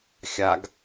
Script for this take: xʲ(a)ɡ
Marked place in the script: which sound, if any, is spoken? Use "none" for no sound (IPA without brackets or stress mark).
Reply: a